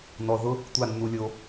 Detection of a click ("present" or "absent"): absent